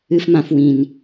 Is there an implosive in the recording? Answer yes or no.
no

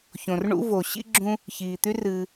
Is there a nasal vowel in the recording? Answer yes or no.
yes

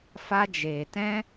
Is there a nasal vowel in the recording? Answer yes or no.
yes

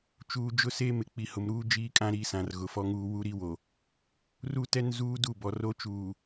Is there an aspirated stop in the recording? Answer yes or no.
no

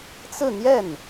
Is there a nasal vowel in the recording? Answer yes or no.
no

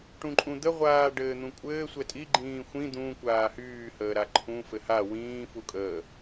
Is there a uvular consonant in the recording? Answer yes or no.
yes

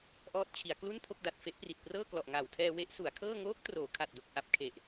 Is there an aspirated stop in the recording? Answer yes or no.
yes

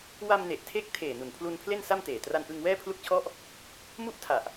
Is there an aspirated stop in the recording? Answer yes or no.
yes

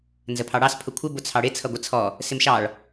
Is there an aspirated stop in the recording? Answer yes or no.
yes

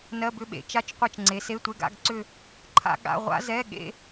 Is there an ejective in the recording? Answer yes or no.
no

